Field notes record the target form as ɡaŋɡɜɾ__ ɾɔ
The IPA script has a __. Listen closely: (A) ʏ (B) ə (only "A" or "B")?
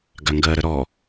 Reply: B